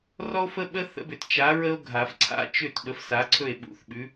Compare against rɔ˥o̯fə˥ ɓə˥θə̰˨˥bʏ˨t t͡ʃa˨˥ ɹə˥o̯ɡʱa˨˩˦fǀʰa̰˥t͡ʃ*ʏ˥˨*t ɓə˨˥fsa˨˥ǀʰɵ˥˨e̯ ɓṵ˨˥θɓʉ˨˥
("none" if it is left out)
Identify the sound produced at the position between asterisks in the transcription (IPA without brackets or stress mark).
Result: ʏ˥˨